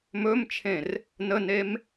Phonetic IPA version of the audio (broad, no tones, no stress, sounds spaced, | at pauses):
m ɵ m t͡ʃʰ ẽ r | n ə n e m